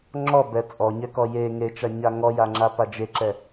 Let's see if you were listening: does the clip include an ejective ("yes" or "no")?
yes